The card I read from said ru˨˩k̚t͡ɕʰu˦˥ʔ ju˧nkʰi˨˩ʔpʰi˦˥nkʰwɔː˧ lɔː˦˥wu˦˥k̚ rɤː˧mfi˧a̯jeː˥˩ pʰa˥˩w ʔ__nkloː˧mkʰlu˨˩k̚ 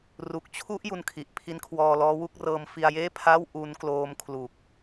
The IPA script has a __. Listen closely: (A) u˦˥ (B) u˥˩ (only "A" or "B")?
A